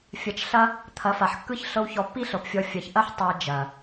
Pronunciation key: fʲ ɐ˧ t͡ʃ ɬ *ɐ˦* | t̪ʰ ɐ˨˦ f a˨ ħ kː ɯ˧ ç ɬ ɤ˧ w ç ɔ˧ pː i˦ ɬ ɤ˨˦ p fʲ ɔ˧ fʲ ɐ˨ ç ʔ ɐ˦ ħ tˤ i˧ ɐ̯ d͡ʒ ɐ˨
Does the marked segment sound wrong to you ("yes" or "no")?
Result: no